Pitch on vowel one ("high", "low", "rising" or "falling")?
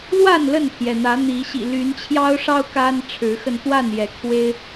falling